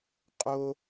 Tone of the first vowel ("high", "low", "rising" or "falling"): low